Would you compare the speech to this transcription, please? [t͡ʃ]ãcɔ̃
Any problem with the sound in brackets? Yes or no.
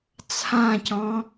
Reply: yes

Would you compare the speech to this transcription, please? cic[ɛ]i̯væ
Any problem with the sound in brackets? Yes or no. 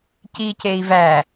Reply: yes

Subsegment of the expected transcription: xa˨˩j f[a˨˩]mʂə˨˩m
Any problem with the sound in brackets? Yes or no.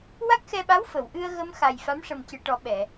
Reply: yes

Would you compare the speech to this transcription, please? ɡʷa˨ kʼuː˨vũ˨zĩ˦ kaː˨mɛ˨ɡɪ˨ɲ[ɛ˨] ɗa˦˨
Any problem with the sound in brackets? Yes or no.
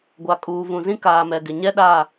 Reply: yes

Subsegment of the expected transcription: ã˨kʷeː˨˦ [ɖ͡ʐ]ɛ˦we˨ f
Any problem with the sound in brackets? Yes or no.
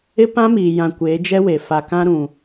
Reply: yes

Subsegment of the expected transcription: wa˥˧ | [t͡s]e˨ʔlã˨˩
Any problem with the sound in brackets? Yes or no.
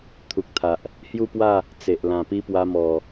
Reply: no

